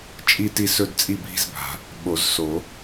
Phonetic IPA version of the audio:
t͡ʃʼ i˥˨ t i˥˨ s ɵ˥˨ d t͡sʼ i˥˨ bʱ i̤˥˨ z bʱ a̤˨˩˦ | ɓ o˨˩˦ z s o˨˩˦

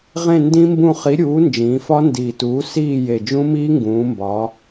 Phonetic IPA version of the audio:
ʁ ẽ˦˨ n d ĩ˦˥ m b ũ˦˨ χ i˨˥ ɾʲ uː˨˥ n d͡ʒ ĩː˩˧ f ɒ˦˥ n d iː˨˩ t uː˨˥ s iː˦˨ j e˨˩ d͡ʒ ũ˦˥ m iː˦˥ ŋ ɡ ũː˩˧ m b ɒː˩˧

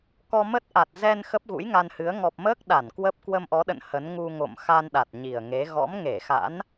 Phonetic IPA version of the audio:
k ɔ˧ m ə˦˥ t̚ ʔ a˨˩ t̚ z ɛ˧ n x ə˦˥ p̚ ɣ ṵ˧˥ j ŋ a˧ n h ɨ˨˦ ə̯ ŋ ɔ˨˩ p̚ m əː˦˥ k̚ ɗ a˧˩ n k w ə˦˥ p̚ k w ə˧ m ʔ ɔ˨˦ ɗ ə̰˧˨ n h ə˨˦ n ŋ u˧ ŋ o̰˧˨ m x a˧ n ɗ a˨˩ t̚ ɲ i˨˩ ə̯ ŋ e˨˦ ɣ ɔ̰˧˥ m ŋ e˧˩ x a̰˧˥ n

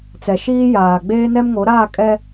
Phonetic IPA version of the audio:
t͡s ɛ˨ ʃ iː˦ j aː˨ ɡ͡b eː˦ n ɛ˦ m ŋ o˨˦ ɾ aː˦˨ kʼ ɛ˦

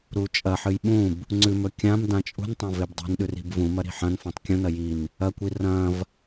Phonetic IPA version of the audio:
ɾ uː t͡ʃʼ ɐ ħ ɨ j ɓ ũ b | ŋ͡ǀ ʉ m ɵ kʲ ã m d ã t͡ʃʼ ṳ n tˤ ã v e b dˤ i̤ n ɗ ʉ r i̤ b v ũ m ɐ ɾ i̤ ħ ɐ̃ n f ã tˤ kʲ õ n ɐ j i n | ɐ kʷ i r ɐ̃ː v

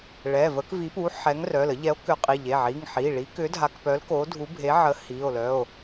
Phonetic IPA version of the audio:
ɭ ɛ˩˧˩ v ə˨˥ k v i˨˥ p u˨˥ ħ ɛ˨˥ ŋ r œ˩˧˩ l ə˨˥ ʎ ɛ˨˥ o̯ k ʏ˨˥ qʼ i˩˧˩ ʎ e˩˧˩ ʕ i˩˧˩ ŋ ħ i˩˧˩ ɭ i˨˥ k ʏ˨˥ dʱ a˨˥ k p œ˨˥ l k o˨˥ dʱ u˨˥ bʱ e˨˥ ʕ ə˨˥ h i˩˧˩ o̯ l œ˩˧˩ o̯

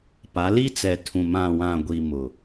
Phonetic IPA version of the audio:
p a˨˦ l i˦ t͡s ɛ˨ tʰ ũ˨ m ã˨ w ã˨ ɡʷ i˨ m ʊ˨

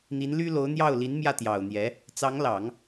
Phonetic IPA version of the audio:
n̪ i˧˥ n l y˥ l o˧˥ ʊ̯ n̪ j ɑ˥˩ ʊ̯ l i˧˥ n m j ä˥˩ t̪ j ɑ˨˩ ʊ̯ n̪ j ɛ˧˥ | t͡s ɑ˧˥ ŋ l ɑ˨˩˦ ŋ

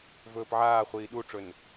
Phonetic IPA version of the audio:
v ɵː p ʕ aː χʷ iː ɗ u ʈ͡ʂ ɵ n

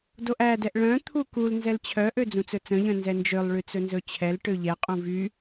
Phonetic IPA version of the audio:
d o ʔ æ d ɛ ʔ ɭ œ̃ t̪ʰ u k u l n z ɛ l t͡ɕʰ œ ʔ ø d͡z ũ t͡s ɵ t͡s œ̃ ʎ œ̃ n z ɛ n d͡ʒ ø lˠ ɭ y t͡s ɵ n z ɵ t͡ɕʰ ɛ l ʈ ø ʎ ɛ qʼ ũ v y

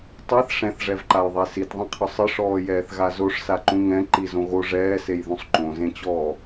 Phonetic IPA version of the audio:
tˤ e θ ʂ ɛ̃ θ ʐ ɛ v ǃ a j ðˤ e s i t ðˤ ĩ qʰ ʊ sˤ ɪ ʂ ɔː j ɛː θ ɣ a z o ʂ s a ǃ ũ ŋ ɛ̃ ǃ i z õ ɣ o ʐ ɛː s e j ð ũ sˤ ǃ õ z ẽ t͡ɕ ɔː

